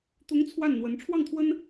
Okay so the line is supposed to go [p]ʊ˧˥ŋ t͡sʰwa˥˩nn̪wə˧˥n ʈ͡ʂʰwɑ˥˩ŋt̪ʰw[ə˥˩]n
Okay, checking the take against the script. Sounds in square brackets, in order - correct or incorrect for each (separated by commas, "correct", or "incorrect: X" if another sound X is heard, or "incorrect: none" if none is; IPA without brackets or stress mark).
incorrect: t̪, incorrect: ə˥